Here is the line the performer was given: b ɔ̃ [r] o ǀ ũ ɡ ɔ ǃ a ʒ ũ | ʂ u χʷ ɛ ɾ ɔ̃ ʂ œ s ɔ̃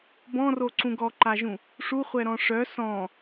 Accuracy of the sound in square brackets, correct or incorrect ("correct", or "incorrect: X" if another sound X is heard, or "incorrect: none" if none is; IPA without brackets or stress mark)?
correct